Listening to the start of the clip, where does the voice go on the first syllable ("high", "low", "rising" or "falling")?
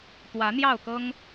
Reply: rising